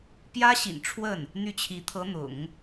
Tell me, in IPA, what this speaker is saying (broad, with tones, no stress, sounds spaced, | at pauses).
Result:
p j ä˥ ɕ ḭ˨˩ n ʈ͡ʂʰ w ə˥˩ n | n̪ y˥˩ t͡ɕʰ i˧˥ t̪ʰ ɤ˧˥ n̪ ʊ̰˨˩˦ ŋ